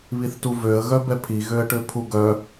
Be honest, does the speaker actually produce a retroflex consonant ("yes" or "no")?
yes